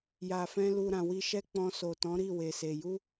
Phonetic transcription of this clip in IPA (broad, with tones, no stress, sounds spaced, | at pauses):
j a˨ f ɛ̃˧ l u˧ ɾ ã˨ w i˧ ʃ ɛ˦ k͡p ɔ̃˧ s o˨ t ɔ̃˨˦ ɾ i˦˨ w e˨ s e˨ j u˧